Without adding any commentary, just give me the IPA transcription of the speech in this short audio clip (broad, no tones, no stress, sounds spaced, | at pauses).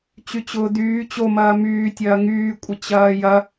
t͡ɕ y t͡ɕ ʊː d yː t͡ɕ o m ɐː m yː tʲ ɐː ŋ yː kʷʼ ə t͡ɕ ɐː j ɐ